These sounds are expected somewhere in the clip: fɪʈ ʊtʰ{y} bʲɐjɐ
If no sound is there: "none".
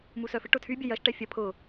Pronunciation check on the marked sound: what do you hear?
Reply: y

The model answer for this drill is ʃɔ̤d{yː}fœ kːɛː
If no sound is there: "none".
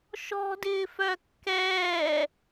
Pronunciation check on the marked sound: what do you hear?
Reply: ɪː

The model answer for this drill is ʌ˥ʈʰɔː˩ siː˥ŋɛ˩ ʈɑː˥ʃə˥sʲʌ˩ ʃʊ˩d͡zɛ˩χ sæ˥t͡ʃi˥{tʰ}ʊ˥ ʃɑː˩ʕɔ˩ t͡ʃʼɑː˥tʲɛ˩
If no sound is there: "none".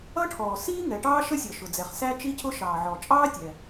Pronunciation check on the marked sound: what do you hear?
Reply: cʰ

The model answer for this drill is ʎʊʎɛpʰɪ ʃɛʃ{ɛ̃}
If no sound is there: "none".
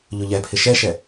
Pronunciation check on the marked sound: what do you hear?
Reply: ɛ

